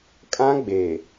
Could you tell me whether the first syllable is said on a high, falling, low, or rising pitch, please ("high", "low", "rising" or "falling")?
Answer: high